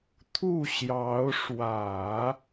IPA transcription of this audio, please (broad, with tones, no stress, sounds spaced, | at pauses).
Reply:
t̪ʰ u˥˩ ɕ j ɑ˧˥ ʊ̯ ʂ w ä˨˩˦